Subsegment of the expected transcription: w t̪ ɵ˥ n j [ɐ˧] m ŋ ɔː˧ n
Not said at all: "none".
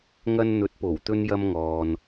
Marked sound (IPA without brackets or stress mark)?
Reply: ɐ˥